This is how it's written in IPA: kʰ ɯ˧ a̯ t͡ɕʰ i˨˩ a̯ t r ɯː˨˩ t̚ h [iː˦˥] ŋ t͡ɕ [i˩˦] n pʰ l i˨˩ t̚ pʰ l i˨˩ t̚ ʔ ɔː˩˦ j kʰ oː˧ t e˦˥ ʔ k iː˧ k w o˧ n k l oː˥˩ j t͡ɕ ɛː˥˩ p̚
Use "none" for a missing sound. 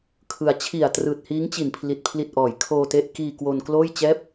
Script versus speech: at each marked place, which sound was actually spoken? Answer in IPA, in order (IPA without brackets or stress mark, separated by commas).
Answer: iː˦˥, i˨˩